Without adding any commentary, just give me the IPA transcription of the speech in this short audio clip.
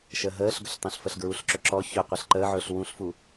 ʃ əː ɦ əː ɬ ɡ ɵ ɬ tˤ õ ɬ f ə ɬ ɡ ɹ u ɬ ǁ ɵ ǁ ɔ ç ɵ qʷ əː ɬ ǃ əː ʕ ɵː ɬ w ũ ɬ f u

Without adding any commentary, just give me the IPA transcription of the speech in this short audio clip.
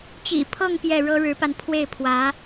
t͡ɕ ḭ˨˩ pʰ ɤ˥˧ ŋ p j ɛ˥˩ ɻ ɤ˥ ɻ ɻ̩˧˥ p a˧ n pʰ w e˥˩ ɪ̯ pʰ w ä˧˥

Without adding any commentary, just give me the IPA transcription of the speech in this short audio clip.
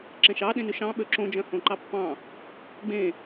ǁ ẽ ʃ ɑ ɗ ẽ n ʉ ʃ ɑ̃ ɓ ø ǁ õ d͡ʒ œ̃ h õ ǃ ɑ pː ɑ̃ | ɡ͡b ẽ

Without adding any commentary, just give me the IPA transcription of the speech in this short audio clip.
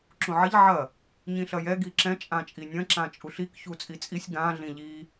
ǁ ũ ʕ ɐ ʎ ʕ ɐ | ɲ ĩ ɬ ɐ j ɛ ɡ i ǁ ɛ̃ t͡ʃʼ ã t͡ʃʼ i nʲ ɐ̃ ǁ ã t͡ʃʼ u ɬ i k ç u t͡sʼ i t͡sʼ i sʲ ɡ ã ɮ ĩ ʎ i

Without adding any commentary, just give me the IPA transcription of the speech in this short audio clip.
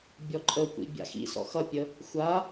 bʲ ɔ ǃʼ ə kʷ ḭ bʲ a̰ x ḭ s ɔ̰ x ʌ pʲ ə | xʷ a

